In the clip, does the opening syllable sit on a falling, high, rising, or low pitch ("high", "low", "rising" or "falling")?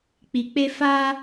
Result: low